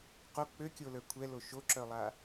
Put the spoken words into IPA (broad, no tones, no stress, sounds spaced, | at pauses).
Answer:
q o k͡p ø kʲ o l ə˞ kʷʰ ɛ l o ʃ o ǁ œ lˠ a